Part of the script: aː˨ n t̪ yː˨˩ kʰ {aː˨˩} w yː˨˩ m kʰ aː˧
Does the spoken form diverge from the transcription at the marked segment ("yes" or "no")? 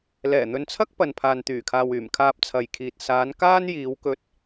yes